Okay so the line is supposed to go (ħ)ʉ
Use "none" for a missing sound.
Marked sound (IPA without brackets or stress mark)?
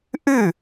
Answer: ʔ